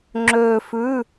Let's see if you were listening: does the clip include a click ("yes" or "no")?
yes